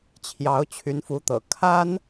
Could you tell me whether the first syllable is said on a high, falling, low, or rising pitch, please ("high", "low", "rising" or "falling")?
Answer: rising